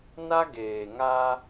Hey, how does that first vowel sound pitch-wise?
high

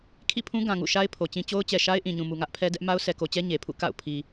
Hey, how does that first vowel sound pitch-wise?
falling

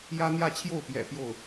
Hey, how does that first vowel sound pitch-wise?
high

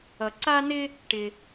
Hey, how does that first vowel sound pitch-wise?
low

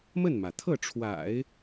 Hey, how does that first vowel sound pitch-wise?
falling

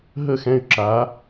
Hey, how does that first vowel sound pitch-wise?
falling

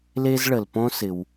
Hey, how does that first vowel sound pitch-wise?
high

